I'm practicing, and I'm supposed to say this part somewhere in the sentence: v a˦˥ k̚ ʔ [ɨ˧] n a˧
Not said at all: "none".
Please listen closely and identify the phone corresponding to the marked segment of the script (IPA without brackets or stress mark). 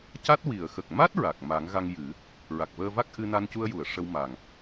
ɨ˧